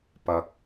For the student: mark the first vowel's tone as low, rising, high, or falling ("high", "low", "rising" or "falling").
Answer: low